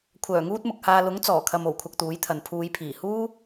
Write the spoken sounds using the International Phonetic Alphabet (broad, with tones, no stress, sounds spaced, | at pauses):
kʷʰ œː˨˩ ŋ uː˥ t̚ m ʊ˨ k̚ h aː˧ l ʊ˨˥ ŋ t͡s ɔː˨˩ kʰ ɐ˧ m o˨˩ w kʷʰ ɐ˧ k̚ t̪ uː˨˥ j t̪ʰ ɐ˨ n pʰ uː˨˧ j pʰ iː˨˩ h uː˥